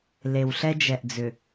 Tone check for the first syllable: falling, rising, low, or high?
low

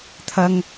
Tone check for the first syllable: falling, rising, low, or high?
high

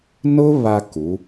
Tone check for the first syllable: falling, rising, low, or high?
high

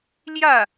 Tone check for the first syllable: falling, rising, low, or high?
falling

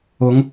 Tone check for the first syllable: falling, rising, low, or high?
rising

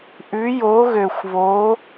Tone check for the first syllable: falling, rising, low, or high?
rising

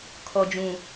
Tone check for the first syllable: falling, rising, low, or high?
low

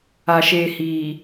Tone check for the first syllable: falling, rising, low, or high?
low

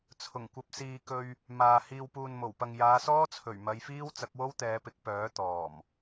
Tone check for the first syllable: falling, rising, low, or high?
low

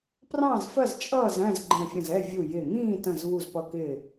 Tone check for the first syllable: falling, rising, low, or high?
falling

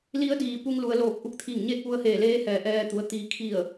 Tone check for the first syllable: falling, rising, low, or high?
rising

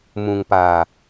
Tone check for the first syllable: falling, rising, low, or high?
low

